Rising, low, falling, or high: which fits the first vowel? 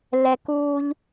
low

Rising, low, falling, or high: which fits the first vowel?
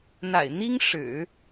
low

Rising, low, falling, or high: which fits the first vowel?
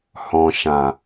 low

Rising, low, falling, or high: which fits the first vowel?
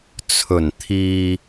low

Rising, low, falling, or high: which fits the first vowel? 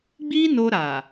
high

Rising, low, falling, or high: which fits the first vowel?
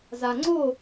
low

